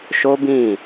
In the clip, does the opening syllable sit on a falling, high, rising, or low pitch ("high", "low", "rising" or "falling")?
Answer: high